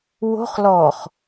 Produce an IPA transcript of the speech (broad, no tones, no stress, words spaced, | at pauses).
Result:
wo̤χ lɔχ